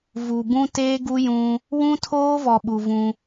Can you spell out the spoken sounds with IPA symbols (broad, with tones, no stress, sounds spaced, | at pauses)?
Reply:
v u˨ b ũ˦ t eː˦ ɡ u˦ j ũ˦ | w ũ˦ tʰ oː˦ v ɔ˨ ɓ u˨ v ũ˦